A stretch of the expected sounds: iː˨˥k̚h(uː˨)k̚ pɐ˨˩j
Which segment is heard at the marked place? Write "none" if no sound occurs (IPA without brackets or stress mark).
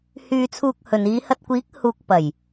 uː˨